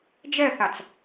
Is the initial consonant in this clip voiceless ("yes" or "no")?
no